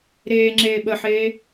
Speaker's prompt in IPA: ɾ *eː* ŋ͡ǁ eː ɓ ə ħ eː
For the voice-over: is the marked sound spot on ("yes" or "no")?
yes